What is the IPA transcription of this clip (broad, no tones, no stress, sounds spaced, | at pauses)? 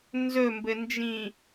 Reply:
n z ɵ m b ɘ n d͡ʒ ĩ